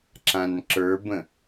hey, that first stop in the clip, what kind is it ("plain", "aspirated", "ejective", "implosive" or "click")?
click